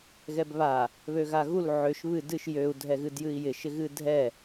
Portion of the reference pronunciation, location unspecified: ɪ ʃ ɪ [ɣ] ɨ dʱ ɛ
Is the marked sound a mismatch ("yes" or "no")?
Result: no